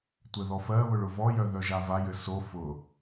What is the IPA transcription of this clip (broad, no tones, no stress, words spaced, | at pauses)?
tʷɘðɔfɜβʊɭ ʊvɔjœ ðœʒavajɘ so fʊ